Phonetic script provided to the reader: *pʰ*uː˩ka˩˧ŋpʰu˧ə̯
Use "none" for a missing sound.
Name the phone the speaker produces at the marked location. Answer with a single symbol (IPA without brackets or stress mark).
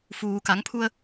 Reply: f